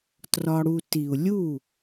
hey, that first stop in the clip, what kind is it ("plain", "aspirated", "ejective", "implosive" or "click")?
plain